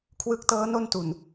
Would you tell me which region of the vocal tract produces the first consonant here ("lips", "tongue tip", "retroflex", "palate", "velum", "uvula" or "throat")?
velum